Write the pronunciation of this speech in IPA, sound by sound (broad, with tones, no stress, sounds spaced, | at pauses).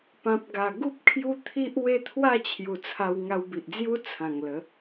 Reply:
p ã˨ p̚ ɡ a˨˩ ɡ u˦ p̚ kʰ j u˦ t̪ʰ i˦ ʔ w e˦ t̪ʰ w a˥˧ t͡ɕʰ j u˨˩ t͡sʰ a˧ w ŋ a˧ w b i˨ ʔ d͡z j u˦ t͡sʰ ã˨˩ ŋ l ə˨˦